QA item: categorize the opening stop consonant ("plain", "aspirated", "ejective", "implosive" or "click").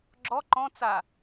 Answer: click